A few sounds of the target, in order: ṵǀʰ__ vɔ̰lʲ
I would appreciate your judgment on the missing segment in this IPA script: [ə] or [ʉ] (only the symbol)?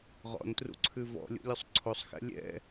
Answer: ʉ